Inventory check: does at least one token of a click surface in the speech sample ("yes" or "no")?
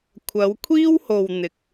no